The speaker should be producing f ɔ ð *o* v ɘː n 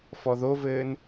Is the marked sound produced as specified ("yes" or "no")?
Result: yes